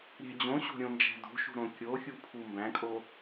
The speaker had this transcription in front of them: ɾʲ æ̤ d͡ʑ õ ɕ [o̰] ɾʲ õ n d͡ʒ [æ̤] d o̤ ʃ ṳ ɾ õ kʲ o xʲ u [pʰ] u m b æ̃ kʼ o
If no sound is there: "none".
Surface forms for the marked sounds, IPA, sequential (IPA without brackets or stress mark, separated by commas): o̤, æ̤, pʰ